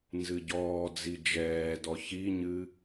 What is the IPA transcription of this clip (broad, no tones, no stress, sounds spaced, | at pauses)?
n z ɨ ɟ ɔː d͡z i d͡ʒ ɛː d ɔ ç i ɲ ɨ